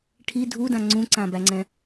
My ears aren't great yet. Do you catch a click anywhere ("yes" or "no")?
yes